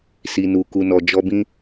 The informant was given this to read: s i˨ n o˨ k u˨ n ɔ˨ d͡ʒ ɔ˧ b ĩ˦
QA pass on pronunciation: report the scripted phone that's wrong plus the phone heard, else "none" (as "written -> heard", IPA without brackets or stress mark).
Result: o˨ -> u˨